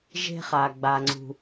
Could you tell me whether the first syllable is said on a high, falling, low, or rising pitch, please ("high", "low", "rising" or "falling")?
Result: high